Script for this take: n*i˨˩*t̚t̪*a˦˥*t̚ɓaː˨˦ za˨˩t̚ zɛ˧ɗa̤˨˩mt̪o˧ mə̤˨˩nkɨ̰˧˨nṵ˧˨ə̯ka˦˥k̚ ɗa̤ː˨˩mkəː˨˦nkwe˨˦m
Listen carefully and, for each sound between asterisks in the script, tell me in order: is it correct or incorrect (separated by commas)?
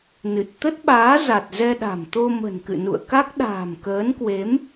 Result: incorrect, incorrect